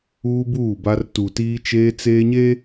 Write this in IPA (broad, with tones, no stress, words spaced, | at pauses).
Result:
uː˦buː˦˨ba˦r tu˨tiː˦ t͡ʃeː˦t͡seː˦ɲe˦